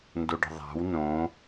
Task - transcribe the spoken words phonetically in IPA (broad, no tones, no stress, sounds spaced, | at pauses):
n d o ɖ ə̤ ðˤ a̤ w n õ